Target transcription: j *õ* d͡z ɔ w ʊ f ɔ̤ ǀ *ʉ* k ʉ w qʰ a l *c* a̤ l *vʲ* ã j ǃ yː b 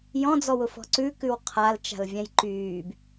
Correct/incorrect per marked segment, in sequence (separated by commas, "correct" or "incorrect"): incorrect, correct, incorrect, correct